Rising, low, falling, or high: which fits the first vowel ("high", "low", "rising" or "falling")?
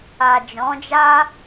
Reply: low